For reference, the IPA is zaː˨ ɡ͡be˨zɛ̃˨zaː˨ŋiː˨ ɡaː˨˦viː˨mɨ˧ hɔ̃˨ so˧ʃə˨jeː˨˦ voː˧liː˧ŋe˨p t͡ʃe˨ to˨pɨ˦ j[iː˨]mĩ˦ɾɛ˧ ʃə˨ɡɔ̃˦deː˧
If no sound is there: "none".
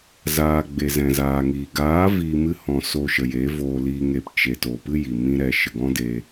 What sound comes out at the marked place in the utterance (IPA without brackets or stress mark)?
i˨